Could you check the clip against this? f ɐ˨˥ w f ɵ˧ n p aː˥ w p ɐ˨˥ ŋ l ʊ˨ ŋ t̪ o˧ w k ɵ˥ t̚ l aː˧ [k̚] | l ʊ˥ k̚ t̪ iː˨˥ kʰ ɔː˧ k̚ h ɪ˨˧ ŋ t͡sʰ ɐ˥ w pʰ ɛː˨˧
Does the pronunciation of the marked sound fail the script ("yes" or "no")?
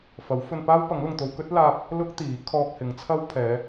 yes